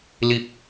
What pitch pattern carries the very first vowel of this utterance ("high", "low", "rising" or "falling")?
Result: low